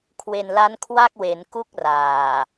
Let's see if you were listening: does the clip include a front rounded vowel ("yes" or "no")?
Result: no